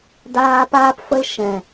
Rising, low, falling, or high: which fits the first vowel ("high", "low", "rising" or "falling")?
high